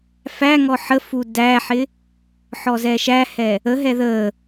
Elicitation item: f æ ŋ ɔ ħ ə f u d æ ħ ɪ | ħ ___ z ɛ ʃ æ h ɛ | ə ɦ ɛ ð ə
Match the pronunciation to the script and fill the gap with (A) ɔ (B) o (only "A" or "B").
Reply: A